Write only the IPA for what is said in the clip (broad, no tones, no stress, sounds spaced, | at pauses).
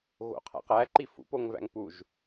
ɣ o̰ qʰ æ̰ q æ ǃ i f ṵ p o ŋ v æ̰ ŋ p u ʒ